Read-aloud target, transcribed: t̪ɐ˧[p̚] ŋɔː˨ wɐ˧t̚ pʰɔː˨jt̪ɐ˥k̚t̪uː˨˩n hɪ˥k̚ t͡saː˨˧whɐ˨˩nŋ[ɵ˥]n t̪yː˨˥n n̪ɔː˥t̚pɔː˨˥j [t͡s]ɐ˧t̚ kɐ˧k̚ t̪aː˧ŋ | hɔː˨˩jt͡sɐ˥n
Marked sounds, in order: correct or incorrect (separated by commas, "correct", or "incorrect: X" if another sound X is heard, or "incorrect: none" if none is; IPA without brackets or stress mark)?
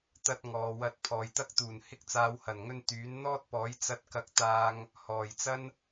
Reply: incorrect: t̚, incorrect: ɵ˧, correct